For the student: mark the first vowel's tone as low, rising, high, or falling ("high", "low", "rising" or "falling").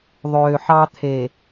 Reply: low